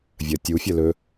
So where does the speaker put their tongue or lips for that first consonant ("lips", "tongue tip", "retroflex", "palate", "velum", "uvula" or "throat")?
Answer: lips